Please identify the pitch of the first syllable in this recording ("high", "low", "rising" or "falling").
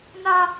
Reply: high